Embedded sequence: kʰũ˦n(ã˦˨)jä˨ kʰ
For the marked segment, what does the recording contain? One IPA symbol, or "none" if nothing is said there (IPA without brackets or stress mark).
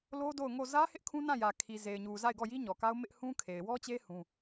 ã˦˨